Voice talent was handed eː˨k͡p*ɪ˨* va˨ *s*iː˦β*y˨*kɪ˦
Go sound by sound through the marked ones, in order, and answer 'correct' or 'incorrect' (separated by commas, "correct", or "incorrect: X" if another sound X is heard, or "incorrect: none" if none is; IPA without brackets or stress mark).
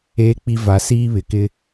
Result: incorrect: i˨, correct, incorrect: ɪ˨